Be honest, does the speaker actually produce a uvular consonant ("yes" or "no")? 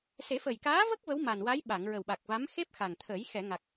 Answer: no